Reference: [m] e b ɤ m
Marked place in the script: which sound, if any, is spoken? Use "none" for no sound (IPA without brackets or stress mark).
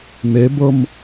m